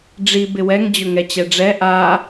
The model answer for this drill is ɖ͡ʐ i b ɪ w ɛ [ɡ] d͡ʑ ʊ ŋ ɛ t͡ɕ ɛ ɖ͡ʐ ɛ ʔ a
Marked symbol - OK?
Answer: no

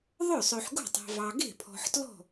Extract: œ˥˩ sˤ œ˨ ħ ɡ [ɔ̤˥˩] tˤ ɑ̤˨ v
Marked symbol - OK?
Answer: no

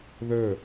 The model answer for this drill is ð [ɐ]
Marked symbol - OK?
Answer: no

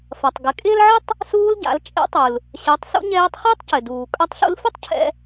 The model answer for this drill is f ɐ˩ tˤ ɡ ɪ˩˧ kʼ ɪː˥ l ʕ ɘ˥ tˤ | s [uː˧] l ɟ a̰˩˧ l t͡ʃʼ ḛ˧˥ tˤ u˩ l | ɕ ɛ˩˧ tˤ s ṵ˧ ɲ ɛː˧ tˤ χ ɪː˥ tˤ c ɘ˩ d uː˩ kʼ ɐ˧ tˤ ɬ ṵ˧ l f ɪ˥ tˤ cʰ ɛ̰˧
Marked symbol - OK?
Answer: yes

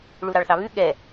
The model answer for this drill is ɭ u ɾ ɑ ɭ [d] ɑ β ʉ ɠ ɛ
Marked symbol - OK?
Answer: no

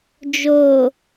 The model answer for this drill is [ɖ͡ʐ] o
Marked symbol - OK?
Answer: no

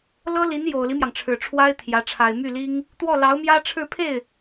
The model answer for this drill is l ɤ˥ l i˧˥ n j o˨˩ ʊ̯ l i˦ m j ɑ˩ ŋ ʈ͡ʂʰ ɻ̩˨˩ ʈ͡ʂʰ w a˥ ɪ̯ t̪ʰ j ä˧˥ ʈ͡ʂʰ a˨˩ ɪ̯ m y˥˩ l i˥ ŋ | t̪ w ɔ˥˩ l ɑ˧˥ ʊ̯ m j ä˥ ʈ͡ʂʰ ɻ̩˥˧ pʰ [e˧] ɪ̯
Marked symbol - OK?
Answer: no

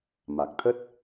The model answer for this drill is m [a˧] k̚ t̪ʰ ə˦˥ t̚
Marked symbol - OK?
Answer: no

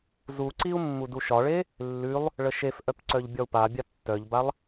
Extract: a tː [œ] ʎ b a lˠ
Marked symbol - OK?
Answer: yes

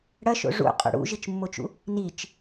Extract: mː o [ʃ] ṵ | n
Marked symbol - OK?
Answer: no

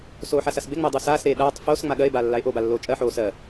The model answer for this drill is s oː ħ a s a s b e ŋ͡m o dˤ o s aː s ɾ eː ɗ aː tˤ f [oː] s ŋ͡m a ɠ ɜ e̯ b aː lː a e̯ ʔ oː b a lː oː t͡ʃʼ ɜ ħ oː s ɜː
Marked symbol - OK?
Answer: yes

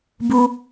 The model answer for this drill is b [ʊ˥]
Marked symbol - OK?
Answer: no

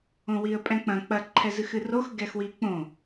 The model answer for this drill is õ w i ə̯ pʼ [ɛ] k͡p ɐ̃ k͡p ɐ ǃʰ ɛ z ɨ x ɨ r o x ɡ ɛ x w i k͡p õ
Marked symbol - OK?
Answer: no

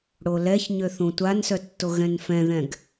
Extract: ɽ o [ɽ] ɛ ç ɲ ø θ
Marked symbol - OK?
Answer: no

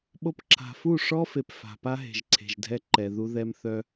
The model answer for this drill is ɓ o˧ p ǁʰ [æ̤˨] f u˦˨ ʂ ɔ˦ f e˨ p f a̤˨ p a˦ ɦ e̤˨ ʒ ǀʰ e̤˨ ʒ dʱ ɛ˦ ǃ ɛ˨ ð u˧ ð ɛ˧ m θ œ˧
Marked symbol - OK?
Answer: no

